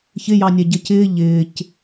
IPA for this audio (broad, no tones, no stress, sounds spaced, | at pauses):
ç ɪ j ɑ nʲ ɛ ɟ ə c ɪː ʎ ɪː c